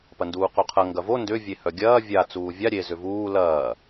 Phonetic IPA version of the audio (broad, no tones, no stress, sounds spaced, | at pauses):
p ɐ n d uː q o qʰ ɐ ŋ ɡ ɐ v o n d ʏ vʲ e h œ ɡʲ ɐː vʲ a t͡s uː vʲ a ɾʲ e z ʏ v uː l ɐː